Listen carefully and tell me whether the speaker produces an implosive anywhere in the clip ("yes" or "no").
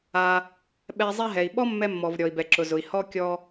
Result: yes